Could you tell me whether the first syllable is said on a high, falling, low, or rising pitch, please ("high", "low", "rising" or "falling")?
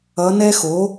rising